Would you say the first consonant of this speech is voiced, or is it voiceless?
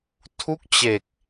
voiceless